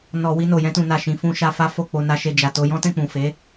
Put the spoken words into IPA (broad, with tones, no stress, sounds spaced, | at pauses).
n ɔ˧ w i˧ n o˨ j ɛ̃˧ t ũ˨ n a˨ ʃ ĩ˨˦ f ũ˧ ʃ a˧ f a˦ f o˦˨ k͡p o˧ n a˧ ʃ e˧ d͡ʒ a˨ t o˧ j ɔ̃˦ t ɛ̃˦˨ k͡p ũ˨ f e˨˦